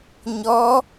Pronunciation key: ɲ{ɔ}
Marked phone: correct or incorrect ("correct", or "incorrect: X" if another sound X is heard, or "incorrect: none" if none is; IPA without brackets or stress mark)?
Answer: correct